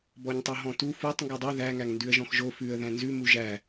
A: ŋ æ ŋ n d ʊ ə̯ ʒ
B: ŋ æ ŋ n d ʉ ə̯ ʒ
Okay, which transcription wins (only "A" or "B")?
B